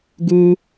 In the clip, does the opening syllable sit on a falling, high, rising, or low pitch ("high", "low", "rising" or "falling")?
high